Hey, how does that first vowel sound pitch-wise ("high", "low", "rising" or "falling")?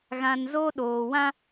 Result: low